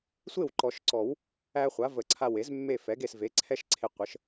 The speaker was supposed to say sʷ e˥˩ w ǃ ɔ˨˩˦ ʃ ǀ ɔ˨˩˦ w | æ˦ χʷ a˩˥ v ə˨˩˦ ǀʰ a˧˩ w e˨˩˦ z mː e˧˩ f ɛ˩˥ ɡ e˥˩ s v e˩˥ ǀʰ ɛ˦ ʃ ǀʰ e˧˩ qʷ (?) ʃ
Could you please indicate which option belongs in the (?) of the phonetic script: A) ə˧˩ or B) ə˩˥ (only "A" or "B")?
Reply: B